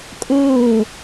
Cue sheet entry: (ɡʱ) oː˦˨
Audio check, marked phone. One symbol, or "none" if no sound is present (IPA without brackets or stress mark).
kʼ